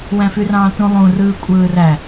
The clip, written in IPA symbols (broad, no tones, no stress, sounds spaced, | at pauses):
w æ̃ f y r ɑ̃ː t ũ lˠ ũ r ɯː kʷʼ ɯː r æ